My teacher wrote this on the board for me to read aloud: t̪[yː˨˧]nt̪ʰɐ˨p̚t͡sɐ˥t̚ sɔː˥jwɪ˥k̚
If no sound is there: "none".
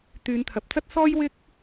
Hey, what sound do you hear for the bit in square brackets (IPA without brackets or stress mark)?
yː˨˧